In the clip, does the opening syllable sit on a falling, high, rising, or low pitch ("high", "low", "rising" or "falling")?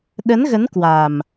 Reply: rising